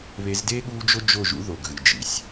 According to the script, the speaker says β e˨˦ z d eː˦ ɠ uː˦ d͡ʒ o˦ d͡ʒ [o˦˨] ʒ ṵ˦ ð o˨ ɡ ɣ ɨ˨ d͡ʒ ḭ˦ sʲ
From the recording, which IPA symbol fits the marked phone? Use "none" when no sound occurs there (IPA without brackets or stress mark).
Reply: o˦˨